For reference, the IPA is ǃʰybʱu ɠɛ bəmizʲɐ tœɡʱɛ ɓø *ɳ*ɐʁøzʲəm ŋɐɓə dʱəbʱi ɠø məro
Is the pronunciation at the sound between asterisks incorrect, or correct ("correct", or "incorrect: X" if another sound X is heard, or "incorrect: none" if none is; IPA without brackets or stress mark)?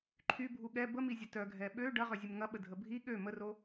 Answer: incorrect: ɖ